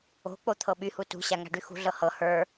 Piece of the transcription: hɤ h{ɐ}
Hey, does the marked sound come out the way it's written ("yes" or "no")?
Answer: no